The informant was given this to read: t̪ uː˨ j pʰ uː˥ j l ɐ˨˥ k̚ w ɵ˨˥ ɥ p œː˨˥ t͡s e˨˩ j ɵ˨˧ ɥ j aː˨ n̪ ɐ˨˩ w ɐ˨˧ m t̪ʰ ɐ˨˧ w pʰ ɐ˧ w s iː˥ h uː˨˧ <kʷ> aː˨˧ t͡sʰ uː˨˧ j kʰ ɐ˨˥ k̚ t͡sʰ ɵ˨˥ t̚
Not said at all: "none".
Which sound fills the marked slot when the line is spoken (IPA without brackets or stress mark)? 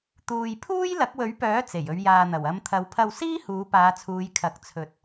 p